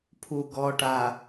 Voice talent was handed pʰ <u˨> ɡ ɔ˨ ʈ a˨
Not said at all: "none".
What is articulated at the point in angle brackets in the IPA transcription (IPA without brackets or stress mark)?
u˨